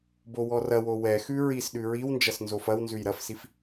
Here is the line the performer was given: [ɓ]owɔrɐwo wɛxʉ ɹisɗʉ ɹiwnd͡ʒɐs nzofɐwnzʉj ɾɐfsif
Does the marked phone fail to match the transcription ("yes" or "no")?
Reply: yes